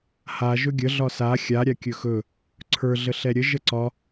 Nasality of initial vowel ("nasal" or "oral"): oral